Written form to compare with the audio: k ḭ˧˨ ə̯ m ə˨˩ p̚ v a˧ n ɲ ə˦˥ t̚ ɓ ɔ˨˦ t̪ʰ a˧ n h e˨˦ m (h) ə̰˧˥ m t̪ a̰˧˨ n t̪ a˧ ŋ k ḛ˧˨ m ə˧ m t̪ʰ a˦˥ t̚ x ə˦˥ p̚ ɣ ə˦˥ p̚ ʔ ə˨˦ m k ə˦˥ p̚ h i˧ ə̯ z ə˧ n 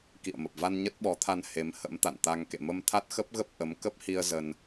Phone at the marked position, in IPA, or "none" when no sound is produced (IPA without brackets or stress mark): h